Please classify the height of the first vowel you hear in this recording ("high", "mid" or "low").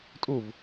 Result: high